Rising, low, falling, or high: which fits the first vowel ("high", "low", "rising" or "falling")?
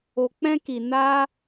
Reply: low